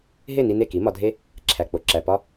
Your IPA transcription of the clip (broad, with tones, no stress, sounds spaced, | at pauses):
ɦ e˦˨ n i˧ n e˦˨ k i˨˦ m ɒ˧ dʱ e˦ | ǁʰ æ˨ k͡p o˨ ǁ æ˨ p ɒ˦